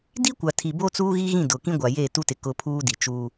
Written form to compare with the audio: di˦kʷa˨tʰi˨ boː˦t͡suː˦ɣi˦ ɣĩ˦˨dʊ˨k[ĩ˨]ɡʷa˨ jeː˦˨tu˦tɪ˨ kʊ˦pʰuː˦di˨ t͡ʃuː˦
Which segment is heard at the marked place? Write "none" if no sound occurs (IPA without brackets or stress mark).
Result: ĩ˦